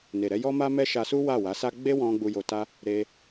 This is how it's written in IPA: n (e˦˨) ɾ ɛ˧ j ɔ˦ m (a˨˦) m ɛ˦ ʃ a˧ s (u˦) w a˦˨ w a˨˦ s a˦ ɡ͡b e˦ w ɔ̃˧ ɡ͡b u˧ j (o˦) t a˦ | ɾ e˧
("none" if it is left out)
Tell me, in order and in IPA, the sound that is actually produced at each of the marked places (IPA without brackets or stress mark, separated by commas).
e˨, a˦, u˦, o˧